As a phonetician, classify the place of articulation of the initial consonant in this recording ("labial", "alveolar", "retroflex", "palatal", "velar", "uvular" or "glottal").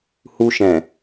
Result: glottal